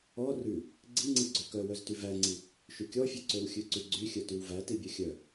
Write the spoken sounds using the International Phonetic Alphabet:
ɔ rʉ | ɡ͡ǀiŋ͡ǀi ɡ͡ǀøkœwœzty væŋ͡ǀi | ʃʉkʲɔfʲʉ ǀøwxʲʉǀyɡ͡ǀy xʲœtywvæti bʲœxʲœ

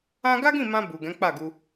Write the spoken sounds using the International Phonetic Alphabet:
ã˦ ɡa˦ɡĩ˦˨mã˧ bu˨ ɡɛ̃˨˦k͡pa˦˨ɡu˧

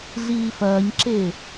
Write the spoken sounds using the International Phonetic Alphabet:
ɮiːfɐːɲǁe

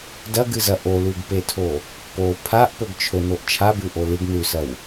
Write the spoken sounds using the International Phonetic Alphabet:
dɐɡɨzɐ ʔolʉɡpetʰo | po pʰaʔpɵɡ t͡ʃʰɵnoʔ t͡ʃʰabʉʔo lɨɡ nʉsɐw

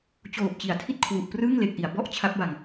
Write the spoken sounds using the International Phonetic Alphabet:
t͡ɕoː˨˩p̚t͡ɕi˩˦a̯tʰi˦˥t̚ kʰwu˨˩ʔprɯː˥˩ŋ le˨˩k̚ʔi˩˦a̯ bɔ˥˩ʔ t͡ɕʰa˦˥p̚ba˧ŋ

